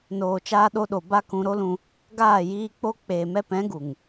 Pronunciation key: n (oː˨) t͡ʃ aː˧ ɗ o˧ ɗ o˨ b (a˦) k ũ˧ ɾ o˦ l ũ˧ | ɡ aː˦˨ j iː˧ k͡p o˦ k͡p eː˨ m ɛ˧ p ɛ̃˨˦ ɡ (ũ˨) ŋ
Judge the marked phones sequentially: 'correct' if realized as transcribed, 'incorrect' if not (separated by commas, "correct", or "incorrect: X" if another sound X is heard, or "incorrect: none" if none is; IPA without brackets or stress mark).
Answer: correct, correct, incorrect: u˨